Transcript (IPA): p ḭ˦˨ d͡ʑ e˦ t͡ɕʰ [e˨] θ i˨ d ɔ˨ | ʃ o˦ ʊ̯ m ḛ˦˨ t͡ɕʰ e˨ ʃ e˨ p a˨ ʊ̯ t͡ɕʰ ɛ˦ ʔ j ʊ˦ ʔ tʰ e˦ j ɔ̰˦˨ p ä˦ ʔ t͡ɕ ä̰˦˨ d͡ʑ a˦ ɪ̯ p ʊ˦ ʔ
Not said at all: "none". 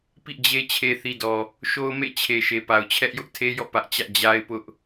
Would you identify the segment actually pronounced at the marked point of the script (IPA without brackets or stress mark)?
e˨